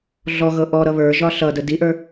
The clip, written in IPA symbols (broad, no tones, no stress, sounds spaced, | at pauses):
ɮ ɔ ɣ ɤ ʔ ɔ ɾ ʌ β ə˞ ʒ ɒ ɬ ʌ d ə d i ʔ ə˞